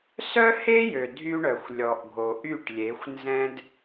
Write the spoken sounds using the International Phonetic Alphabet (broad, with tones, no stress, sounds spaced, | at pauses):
s œ˦ h e˦ j ø˨ dʱ y˦ ɳ œ˨ xʷ lʲ ɔ˨ ʔ ɡʱ o˨ ʔ y˦˨ ʈ lʲ e˨˦ xʷ n z ɛ̃˦ d